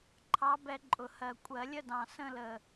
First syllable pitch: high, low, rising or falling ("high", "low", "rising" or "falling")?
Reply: rising